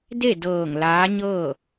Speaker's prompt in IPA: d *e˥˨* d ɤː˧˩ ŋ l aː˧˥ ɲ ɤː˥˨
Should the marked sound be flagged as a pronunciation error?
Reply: no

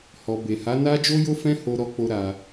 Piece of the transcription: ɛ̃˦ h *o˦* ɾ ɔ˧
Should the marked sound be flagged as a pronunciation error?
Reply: yes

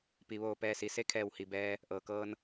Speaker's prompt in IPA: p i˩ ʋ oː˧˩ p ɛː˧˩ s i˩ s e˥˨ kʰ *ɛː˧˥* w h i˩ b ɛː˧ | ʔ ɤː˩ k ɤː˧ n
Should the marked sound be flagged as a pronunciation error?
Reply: yes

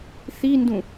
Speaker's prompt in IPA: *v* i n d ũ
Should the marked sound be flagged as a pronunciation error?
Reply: yes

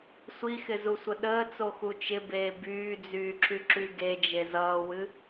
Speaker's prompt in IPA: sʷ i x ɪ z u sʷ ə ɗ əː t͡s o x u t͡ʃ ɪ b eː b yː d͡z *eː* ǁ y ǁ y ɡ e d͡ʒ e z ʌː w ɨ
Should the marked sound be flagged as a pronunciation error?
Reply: yes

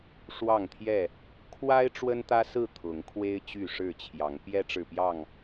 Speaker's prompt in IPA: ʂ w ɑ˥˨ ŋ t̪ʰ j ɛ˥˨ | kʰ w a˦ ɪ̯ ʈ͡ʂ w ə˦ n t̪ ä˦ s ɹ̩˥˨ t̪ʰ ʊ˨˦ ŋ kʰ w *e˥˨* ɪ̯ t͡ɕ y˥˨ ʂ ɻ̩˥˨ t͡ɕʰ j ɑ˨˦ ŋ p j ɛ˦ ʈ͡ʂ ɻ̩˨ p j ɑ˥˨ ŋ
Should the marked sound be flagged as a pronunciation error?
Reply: yes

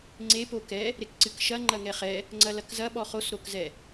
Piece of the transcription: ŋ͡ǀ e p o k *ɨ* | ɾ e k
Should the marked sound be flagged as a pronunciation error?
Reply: yes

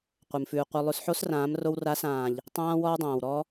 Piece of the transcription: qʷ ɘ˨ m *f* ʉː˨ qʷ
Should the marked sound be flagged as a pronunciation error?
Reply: no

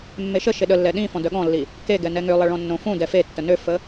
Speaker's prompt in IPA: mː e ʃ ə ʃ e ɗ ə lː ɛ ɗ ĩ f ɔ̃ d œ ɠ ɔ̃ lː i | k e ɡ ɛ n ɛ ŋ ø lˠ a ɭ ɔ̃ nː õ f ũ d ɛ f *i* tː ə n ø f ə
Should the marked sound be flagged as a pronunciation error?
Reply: yes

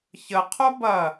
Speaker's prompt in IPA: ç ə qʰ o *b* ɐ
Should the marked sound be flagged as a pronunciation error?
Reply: no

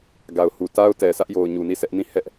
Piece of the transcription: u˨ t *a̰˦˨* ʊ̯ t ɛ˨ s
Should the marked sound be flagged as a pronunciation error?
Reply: yes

